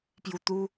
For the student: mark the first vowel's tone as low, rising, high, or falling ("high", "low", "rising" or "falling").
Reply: low